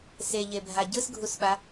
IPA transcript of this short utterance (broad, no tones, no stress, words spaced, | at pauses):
seʎebʱa ɟɯsɡʱusɓa